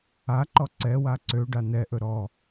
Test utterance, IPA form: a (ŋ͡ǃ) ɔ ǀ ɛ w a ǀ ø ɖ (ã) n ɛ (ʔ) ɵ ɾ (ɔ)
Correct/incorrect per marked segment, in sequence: incorrect, incorrect, correct, correct

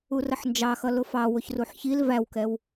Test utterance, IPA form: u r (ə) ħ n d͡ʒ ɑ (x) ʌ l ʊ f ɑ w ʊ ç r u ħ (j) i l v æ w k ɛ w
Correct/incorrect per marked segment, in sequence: correct, correct, incorrect

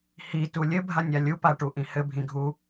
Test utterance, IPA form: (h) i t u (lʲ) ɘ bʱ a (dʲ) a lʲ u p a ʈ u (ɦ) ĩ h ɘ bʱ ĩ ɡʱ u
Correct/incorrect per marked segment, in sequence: correct, correct, incorrect, incorrect

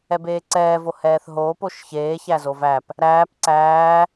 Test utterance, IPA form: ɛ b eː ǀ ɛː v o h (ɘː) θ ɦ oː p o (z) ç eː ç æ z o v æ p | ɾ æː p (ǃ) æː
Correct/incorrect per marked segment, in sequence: incorrect, incorrect, incorrect

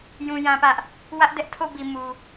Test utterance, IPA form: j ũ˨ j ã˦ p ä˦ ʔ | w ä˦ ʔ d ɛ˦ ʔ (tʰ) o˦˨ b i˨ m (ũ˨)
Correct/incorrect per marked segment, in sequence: correct, incorrect

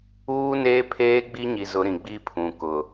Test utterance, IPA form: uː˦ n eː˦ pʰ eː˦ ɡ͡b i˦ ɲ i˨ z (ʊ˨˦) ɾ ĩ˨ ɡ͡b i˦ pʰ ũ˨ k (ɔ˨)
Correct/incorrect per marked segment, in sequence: correct, incorrect

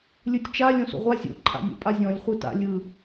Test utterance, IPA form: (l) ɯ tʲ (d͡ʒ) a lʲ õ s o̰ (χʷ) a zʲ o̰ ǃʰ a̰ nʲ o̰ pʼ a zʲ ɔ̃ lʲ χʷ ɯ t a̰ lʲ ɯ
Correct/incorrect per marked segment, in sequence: incorrect, incorrect, incorrect

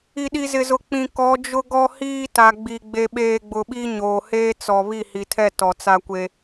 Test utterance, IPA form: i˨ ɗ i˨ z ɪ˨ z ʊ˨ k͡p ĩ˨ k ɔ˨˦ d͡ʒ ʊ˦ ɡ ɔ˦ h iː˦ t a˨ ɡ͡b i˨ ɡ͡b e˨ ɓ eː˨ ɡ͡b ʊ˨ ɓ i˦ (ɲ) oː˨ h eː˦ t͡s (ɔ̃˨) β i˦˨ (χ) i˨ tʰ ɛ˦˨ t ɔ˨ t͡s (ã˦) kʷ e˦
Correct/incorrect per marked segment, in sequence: correct, incorrect, incorrect, incorrect

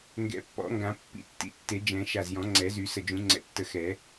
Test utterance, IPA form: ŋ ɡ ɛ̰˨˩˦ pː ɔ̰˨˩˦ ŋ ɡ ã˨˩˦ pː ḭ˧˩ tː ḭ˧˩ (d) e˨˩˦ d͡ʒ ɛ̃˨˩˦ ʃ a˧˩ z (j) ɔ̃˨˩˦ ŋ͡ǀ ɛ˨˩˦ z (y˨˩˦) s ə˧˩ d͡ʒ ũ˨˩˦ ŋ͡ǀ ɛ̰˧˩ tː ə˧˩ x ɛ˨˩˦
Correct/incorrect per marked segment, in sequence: incorrect, correct, correct

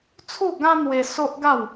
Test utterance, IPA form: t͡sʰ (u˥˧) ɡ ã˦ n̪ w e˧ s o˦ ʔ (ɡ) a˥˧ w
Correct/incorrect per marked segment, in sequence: correct, correct

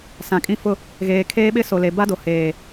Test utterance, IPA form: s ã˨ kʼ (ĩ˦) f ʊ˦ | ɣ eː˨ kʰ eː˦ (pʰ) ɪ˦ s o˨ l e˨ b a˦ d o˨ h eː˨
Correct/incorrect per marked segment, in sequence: correct, incorrect

